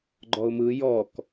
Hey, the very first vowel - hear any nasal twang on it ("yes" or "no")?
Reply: no